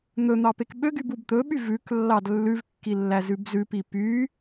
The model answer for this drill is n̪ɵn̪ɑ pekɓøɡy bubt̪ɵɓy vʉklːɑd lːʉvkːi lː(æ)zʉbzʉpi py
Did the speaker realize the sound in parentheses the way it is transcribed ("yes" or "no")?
yes